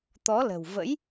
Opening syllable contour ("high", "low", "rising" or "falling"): rising